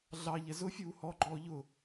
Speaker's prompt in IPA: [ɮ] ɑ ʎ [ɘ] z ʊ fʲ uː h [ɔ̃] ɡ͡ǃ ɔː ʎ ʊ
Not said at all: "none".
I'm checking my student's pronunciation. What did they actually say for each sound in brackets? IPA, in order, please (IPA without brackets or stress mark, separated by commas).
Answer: ɮ, ɛ, ɔ